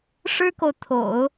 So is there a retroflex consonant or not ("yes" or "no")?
yes